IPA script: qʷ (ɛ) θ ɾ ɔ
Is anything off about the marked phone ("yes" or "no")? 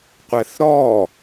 no